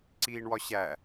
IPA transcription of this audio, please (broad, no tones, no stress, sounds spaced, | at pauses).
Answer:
ǀ iː ɳ w ɒ ɕ æ